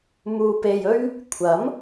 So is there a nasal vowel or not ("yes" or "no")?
no